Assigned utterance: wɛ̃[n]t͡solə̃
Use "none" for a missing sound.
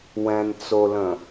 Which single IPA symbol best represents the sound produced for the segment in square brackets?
n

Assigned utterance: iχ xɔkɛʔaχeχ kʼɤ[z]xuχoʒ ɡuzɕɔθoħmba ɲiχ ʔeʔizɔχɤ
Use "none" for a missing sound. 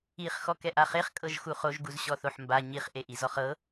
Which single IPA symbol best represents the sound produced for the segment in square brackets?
ʒ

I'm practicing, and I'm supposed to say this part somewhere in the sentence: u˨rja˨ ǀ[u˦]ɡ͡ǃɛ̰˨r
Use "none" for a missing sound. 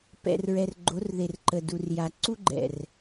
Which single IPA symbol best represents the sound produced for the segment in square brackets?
u˦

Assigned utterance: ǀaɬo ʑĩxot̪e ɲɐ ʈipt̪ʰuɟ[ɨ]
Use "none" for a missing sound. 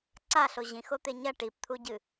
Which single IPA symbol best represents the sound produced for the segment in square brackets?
ɨ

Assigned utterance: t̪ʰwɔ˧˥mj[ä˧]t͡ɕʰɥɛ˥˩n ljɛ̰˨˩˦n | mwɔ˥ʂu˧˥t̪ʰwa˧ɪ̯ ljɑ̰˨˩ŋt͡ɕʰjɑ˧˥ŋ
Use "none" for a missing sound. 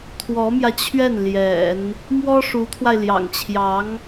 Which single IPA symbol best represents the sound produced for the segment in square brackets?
ä˧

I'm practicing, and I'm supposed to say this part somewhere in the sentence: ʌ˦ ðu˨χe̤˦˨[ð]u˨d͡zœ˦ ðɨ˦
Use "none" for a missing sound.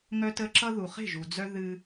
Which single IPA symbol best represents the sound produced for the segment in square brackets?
ʒ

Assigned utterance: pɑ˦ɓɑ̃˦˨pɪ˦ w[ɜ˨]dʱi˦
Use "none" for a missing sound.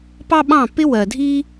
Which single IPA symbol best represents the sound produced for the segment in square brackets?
ɜ˨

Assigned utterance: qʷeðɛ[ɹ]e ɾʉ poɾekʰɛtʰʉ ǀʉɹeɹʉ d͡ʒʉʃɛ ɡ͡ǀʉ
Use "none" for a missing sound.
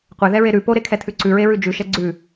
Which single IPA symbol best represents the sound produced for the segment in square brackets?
ɹ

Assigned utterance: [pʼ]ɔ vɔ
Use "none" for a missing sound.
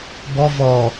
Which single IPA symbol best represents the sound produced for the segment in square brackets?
b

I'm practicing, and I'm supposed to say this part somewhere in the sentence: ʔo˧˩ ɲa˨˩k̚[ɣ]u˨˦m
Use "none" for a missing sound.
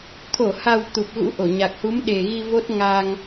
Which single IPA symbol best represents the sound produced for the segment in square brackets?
h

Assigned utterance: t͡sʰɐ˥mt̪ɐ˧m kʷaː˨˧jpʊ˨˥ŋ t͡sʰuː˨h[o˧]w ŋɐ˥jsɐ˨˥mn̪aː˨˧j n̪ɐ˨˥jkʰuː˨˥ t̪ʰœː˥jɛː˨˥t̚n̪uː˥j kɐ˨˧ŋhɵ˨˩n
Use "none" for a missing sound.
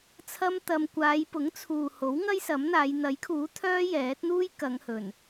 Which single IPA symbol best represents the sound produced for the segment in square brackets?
o˨˥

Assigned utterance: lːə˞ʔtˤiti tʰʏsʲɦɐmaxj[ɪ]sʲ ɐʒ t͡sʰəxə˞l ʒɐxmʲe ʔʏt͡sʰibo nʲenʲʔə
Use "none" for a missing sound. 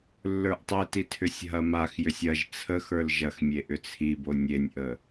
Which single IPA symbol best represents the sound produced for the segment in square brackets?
ʏ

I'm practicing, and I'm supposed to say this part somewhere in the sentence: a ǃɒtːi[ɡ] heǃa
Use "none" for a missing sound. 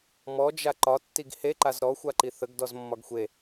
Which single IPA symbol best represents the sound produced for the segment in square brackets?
ɡ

